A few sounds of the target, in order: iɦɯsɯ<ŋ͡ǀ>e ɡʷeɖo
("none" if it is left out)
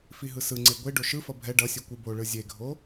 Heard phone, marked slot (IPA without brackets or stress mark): ŋ͡ǀ